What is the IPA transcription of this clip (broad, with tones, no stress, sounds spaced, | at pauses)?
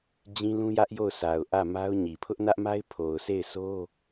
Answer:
d͡ʑ ĩ˦ l ũ˦ j ä˦ ʔ j o˦˨ ʊ̯ sʰ a˨ ʊ̯ ʔ ä˦˨ m a˦ ʊ̯ ɲ i˨ pʰ ʊ˦ ʔ n ä˦ ʔ m a˦ ɪ̯ pʰ o˨ ʊ̯ sʰ e˦˨ ɪ̯ sʰ o˦